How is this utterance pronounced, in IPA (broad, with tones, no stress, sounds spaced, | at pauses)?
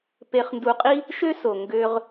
p e˧ χ n d u˧ qʼ i˥ | ʃ ø˥ s o˩ ŋ ɡ ø˧ ʁ